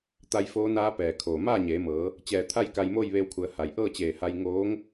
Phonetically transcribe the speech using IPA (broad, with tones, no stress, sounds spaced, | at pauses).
t̪ a˧ j f oː˧˥ n aː˧˥ p ɛː˩ kʰ oː˩ m aː˥˨ ɲ eː˩˧ m ɤː˩˧ | t͡ɕ ɛː˧˩ t̪ʰ a˥˨ j k a˧ j m oː˥˨ j ʋ eː˧ w kʰ u˩˧ ə̯ h a˩ j ʔ ɤː˥˨ t͡ɕ eː˧˩ h a˧ j ŋ oː˧˥ ŋ